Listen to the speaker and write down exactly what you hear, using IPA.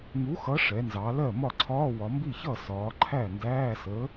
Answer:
ŋ u˨˥ x ʌ˨˥ ʂ ɛ˩˧ n z ɑ˩˧ l ɜ˥˩ m ɒ˥˩ ǀʰ ɒː˧˥˧ w ɒ˩˧ m b i˥˩ ç ʌ˥˩ s ɒː˩˧ ǃʰ æ˥˩ n d æː˧˥˧ s ə˨˥

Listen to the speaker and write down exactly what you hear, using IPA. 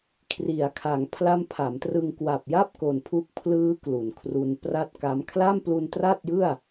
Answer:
kʰ r i˩˦ a̯ kʰ a˩˦ ŋ pʰ l a˦˥ m pʰ a˩˦ m t r ɯ˧ ŋ k w a˨˩ p̚ j a˥˩ p̚ k o˨˩ n pʰ u˥˩ k̚ pʰ l ɯː˦˥ k l u˩˦ n kʰ r u˧ n p r a˥˩ t̚ k a˦˥ m kʰ l a˥˩ m p l u˧ n t r a˥˩ t̚ j ɯ˥˩ a̯

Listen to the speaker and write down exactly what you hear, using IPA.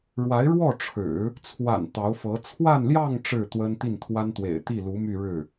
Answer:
ɻ w a˧˥ ɪ̯ ɻ w ɔ˥˩ ʈ͡ʂʰ ɻ̩˨˩˦ | t͡sʰ w a̰˨˩ n t̪ ɑ˧˥ ʊ̯ f ɤ˧˥ t͡sʰ w a˥˧ n l j ɑ˥˧ ŋ ʈ͡ʂ ɻ̩˥˩ t̪ w ə˥ n t̪ i˥˩ n t̪ʰ w a˥ n t̪ w ḛ˨˩ ɪ̯ t̪ i˥˩ l u˧˥ m y˥˧ ɻ ɻ̩˥˩

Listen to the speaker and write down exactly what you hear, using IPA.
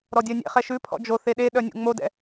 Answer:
ɾ ɔ dʲ œ nʲ ɛ̰ χ ɛ ʃ ʉ pʰ ɔ̰ d͡ʒ o θ e ɗ e ɗ œ nʲ ṵ ŋ͡m o d ɛ̰

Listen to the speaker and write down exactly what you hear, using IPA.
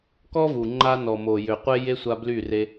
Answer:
k ɔ˦ v u˨ ŋ͡ǃ a˦ n ɔ˨ m o˨ j ø˨ qʷ e˦ j e˦ sʷ a˧ b l y˦˨ r e˧

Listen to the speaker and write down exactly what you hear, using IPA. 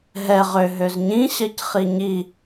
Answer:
ɦ ɛ ʁ ø ɦ ø z ɲ ĩ ɕ ɜ c χ i ɲ i

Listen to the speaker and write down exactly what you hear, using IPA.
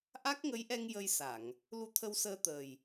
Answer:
ʔ a˦˥ k̚ ŋ ə˧˥ j ʔ ɛ˧ ŋ j ə˧ j s a˨˩˨ ŋ | l u˧˥ t̪ʰ ə˧ w s əː˧ t̪ əː˨˩ j

